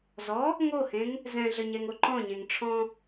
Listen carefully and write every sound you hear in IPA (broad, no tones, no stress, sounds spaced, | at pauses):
z ɔ | ŋ o h ẽ ŋ | z ɛ̃ ɮ ə ɲ ɛ ŋ o ǃ ɔ̃ ɲ ẽ ŋ ʈ͡ʂʰ ɔ̃